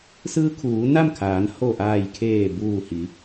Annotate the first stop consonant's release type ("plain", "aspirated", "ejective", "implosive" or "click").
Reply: aspirated